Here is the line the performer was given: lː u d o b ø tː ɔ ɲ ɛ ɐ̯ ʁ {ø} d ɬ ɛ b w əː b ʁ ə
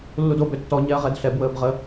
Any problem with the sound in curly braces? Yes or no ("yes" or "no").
yes